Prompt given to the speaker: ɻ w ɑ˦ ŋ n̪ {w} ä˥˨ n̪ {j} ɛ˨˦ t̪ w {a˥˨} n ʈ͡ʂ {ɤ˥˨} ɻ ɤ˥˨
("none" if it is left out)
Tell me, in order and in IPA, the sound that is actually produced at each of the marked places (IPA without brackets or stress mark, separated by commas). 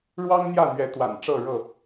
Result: j, ɥ, a̰˨˩, ɤ˥˨